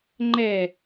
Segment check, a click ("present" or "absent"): present